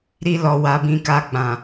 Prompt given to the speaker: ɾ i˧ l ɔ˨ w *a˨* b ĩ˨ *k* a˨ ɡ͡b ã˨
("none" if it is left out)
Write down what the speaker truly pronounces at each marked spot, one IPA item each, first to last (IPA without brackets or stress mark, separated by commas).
a˨, k